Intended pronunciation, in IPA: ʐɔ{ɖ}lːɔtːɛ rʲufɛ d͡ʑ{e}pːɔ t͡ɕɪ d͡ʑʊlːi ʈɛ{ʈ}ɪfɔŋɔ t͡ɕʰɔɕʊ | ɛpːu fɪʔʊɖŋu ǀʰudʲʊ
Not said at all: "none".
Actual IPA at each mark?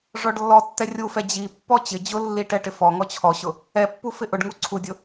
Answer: ɖ, i, ʈ

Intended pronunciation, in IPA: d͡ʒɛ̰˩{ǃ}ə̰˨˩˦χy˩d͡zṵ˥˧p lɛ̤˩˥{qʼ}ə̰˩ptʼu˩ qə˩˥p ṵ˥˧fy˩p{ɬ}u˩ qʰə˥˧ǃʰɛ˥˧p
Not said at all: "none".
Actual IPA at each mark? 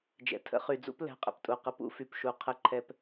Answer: tʰ, qʼ, ʃ

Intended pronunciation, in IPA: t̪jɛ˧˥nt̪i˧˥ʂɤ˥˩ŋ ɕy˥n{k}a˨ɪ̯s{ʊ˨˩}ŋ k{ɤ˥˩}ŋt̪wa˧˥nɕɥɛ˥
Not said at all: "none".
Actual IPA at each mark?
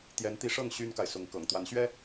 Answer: k, ʊ˧˥, ɤ̰˨˩

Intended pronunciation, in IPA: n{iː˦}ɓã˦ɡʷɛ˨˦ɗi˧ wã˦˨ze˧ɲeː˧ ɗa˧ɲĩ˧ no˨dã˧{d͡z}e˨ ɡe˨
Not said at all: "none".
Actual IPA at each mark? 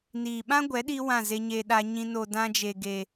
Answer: iː˨, d͡ʒ

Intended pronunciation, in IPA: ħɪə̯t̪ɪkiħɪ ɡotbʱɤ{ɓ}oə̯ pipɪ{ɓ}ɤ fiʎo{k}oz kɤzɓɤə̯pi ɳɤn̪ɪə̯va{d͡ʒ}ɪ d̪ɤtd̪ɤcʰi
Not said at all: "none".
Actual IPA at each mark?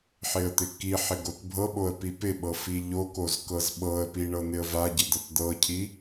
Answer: ɓ, ɓ, k, ɟ

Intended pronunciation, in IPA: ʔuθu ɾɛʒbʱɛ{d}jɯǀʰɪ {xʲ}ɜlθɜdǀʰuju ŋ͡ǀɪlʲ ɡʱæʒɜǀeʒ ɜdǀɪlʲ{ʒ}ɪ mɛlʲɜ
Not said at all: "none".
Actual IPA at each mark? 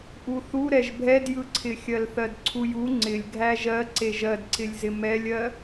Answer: d, xʲ, z

